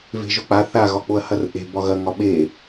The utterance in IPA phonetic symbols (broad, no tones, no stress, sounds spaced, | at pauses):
v e̤ ʒ ʊ k͡p a θ a ɣ ɒ k͡p o ɐ̯ h ɐ r ʔ e̤ b ɒ ɣ ɐ ŋ ɒ ɓ e